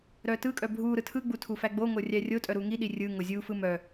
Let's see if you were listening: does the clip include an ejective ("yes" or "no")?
yes